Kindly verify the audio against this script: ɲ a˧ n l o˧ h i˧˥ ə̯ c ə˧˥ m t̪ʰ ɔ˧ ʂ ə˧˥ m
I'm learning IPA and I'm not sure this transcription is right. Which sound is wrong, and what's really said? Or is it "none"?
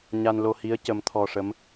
none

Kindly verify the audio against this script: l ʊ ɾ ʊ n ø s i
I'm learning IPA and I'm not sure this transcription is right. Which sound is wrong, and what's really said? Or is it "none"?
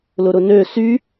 i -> y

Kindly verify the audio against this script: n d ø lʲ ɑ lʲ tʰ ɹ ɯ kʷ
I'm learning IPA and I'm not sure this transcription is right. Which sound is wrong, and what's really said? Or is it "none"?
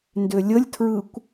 ɑ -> ə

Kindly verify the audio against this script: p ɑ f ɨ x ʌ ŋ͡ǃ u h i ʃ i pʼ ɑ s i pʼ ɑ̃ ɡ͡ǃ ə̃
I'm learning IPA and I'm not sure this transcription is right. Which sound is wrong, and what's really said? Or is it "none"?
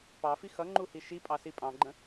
ɨ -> i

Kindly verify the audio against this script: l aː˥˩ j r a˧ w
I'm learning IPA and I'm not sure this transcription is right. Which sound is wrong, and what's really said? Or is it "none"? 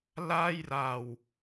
none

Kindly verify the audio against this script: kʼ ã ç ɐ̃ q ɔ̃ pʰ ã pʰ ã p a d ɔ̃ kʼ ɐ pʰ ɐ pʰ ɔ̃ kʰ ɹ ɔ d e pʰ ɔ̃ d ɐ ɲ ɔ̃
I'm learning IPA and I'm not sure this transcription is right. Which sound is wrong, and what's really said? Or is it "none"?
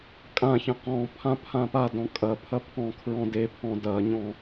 ɔ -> ɔ̃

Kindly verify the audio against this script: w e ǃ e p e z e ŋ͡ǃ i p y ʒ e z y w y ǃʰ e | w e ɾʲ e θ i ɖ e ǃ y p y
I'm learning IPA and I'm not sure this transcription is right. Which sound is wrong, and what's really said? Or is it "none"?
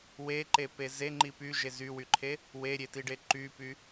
θ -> t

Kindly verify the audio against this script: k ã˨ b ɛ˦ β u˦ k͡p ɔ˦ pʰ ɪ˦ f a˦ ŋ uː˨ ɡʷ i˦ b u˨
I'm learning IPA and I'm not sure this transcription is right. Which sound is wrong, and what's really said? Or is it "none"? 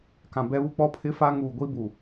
none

